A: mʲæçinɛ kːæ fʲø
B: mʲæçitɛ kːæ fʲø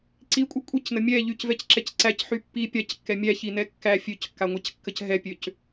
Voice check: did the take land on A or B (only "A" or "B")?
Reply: A